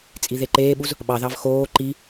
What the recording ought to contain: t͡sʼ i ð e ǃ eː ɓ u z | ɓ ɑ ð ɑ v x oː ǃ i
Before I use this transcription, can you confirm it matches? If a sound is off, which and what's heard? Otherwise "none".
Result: none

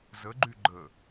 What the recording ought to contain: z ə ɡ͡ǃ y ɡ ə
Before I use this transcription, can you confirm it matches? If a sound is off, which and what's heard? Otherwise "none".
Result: ɡ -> ɡ͡ǃ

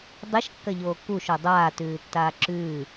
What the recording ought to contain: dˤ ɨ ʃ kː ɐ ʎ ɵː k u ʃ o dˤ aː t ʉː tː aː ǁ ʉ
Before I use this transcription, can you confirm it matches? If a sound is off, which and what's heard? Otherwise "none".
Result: ɵː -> oː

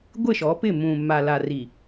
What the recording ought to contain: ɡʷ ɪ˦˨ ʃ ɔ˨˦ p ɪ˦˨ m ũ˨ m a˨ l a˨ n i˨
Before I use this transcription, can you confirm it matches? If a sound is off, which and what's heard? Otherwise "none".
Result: n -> r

